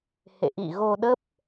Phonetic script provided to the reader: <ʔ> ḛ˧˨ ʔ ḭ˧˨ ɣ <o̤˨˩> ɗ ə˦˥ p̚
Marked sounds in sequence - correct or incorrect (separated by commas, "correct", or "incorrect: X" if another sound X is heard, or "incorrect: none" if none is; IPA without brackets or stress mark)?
incorrect: h, incorrect: o˧